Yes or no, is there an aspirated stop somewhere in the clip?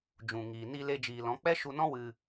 no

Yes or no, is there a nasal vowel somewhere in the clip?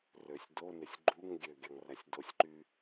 no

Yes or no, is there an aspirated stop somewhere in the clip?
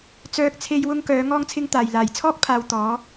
yes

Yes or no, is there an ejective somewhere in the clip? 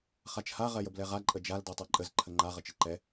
yes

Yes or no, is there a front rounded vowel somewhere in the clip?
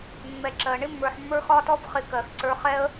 no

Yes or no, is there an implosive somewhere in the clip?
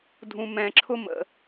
no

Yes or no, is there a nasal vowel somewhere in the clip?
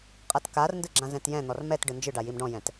yes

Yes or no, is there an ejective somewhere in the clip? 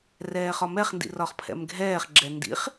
no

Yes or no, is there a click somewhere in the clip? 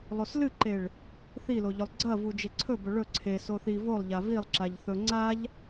yes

